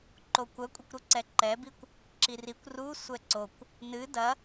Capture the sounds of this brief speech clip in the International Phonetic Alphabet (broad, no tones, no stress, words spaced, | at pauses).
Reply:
ǃokʷɐkʷʼɐkʷɾu ǀɛǃɛbikʷ | ǁirikʷ ru sʷɛǀokʷ | nɨ dɐ